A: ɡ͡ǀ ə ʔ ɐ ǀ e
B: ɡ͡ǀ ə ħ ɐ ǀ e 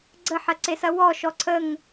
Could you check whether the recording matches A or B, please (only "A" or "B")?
B